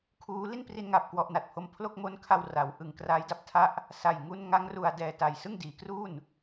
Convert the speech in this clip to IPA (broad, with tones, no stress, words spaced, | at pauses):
kʰuː˦˥ li˥˩npri˧nŋa˨˩p̚ kwɔ˥˩ʔna˨˩t̚pʰo˥˩m pʰlo˥˩k̚mo˦˥nkʰa˧w ra˩˦w ʔɯ˨˩ŋkraː˦˥jda˥˩p̚tʰa˥˩ʔ | sa˨˩j ŋu˧n ŋa˦˥ŋ ru˨˩a̯ dɛː˨˩ ta˨˩j sɯ˥˩ŋdiː˩˦kruː˥˩n